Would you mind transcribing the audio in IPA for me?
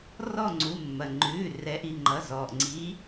r ɔ˦˨ ŋ͡ǀ u˩˧˩ mː ɐ˩ ŋ͡ǃ ʉː˩˧˩ r ɛ˨˥ ʔ i˩˧˩ ŋ͡ǃ ʌ˩˧˩ z ɔː˩ ʔ ŋ͡ǀ iː˨˥

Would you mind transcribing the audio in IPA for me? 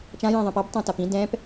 t͡ʃ ã j ɛ̃ ðˤ ɛ̃ p a b tˤ ã t a p ĩ d ɛ̃ p

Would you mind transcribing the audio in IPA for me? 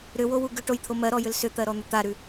ɾ ʏ w o w u ɡ ʏ ʈ o j t̪ʰ o m ɜ ɾ ɔ j ʏ l s ʏ t̪ ɜ ɾ ɔ n̪ ʏ t̪ a ɾ ʉ

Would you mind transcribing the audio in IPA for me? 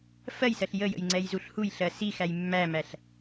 f ɜ j s ɜ ɬ j ə j ə̰ j ŋ͡ǀ ɛ j z u ɬ h u j ɬ ɜ s i x æ j mː æ m æ ɬ

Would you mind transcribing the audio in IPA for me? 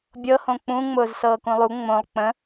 bʲ ɤ h õ k͡p ũ ŋ͡m ʊː z s ɤː k ũ lˠ u ŋ͡m õ lˠ k͡p ə̃

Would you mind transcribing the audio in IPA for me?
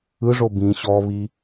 ɯ ʐ o b ĩ ɕ ɔ β i

